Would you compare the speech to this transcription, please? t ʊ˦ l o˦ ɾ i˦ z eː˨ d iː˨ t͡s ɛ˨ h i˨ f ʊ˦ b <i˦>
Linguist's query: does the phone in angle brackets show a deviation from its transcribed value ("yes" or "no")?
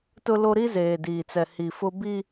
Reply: no